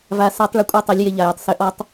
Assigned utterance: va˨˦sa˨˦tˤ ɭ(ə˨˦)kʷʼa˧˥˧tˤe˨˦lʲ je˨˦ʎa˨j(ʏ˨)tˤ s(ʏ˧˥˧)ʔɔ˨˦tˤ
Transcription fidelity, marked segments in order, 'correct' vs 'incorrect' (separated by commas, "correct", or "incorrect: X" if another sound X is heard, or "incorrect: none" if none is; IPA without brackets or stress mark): correct, correct, incorrect: ʏ˨˦